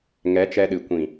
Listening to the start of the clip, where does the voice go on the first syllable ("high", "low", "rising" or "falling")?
rising